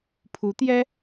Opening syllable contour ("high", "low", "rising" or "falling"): rising